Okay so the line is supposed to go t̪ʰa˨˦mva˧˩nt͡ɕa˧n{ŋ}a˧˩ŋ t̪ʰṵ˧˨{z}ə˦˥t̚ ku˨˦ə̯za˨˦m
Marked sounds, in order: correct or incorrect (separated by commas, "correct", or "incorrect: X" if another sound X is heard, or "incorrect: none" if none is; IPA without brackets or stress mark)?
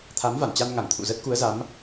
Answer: correct, correct